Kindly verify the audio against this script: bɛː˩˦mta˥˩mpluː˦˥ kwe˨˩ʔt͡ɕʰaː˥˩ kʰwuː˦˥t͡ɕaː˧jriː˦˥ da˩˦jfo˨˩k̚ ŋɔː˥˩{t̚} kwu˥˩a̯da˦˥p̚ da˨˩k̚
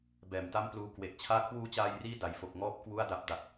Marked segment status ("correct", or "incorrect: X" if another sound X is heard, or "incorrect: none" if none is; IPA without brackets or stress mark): incorrect: p̚